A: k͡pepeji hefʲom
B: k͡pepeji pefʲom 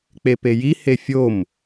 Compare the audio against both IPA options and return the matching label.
A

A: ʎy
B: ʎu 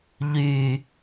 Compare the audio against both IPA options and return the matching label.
A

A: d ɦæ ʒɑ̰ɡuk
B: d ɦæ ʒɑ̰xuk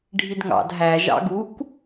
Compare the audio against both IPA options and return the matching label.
A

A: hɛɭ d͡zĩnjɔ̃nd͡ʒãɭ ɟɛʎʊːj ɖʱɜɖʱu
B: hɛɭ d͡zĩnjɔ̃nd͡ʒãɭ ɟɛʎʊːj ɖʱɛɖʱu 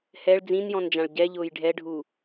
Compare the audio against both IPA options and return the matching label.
B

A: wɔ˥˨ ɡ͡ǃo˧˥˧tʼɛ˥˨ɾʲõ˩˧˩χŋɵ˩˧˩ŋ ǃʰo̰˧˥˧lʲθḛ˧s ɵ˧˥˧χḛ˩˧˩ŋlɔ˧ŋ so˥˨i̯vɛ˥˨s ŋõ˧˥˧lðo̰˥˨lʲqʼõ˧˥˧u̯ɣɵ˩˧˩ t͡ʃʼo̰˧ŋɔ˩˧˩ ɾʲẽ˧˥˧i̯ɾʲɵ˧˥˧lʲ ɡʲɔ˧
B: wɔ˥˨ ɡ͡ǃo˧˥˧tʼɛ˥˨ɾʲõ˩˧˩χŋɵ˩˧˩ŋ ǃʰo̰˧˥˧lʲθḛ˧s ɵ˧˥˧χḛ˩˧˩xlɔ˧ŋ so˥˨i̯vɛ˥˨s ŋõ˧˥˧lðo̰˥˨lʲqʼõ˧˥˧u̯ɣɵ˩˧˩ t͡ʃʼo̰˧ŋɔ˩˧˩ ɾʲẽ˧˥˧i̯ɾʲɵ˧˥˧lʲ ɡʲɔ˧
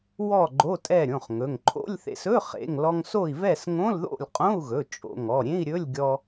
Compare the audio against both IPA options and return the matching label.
A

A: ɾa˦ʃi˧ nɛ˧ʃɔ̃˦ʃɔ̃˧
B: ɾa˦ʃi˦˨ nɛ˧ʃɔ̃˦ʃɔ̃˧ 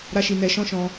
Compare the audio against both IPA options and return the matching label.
A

